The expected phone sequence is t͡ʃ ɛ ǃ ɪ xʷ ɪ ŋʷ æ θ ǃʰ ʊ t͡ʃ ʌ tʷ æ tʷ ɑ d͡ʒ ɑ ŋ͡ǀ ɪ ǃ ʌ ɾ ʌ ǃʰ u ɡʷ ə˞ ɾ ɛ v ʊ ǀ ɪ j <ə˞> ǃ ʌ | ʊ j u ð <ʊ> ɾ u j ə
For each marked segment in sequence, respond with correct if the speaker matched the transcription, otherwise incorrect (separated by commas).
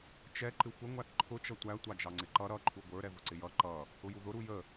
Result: incorrect, correct